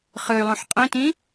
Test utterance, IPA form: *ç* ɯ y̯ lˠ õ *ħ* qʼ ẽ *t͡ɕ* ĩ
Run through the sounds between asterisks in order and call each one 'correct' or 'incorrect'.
incorrect, correct, incorrect

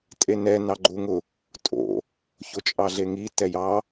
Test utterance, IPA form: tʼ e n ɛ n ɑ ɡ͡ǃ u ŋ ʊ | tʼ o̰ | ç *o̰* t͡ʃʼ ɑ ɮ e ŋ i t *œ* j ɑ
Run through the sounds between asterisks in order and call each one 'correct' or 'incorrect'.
incorrect, incorrect

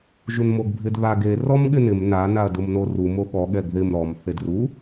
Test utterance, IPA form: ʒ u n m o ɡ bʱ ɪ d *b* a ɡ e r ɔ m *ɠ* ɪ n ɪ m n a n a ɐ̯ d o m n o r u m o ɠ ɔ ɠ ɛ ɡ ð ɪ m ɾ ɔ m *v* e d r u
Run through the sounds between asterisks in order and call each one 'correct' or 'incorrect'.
incorrect, correct, incorrect

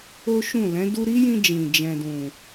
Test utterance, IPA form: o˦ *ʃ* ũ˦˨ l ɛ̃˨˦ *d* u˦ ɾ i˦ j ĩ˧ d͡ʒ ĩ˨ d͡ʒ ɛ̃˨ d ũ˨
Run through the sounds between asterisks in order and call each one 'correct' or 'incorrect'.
correct, correct

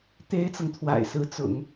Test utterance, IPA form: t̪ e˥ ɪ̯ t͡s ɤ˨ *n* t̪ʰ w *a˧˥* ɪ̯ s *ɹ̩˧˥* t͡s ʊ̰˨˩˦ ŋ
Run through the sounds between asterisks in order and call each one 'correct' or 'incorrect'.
incorrect, incorrect, correct

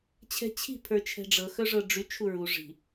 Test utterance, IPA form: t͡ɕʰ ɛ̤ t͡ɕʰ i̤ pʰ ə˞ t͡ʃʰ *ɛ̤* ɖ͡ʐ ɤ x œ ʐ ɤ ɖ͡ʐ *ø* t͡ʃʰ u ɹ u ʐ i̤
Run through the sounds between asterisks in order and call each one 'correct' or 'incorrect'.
correct, incorrect

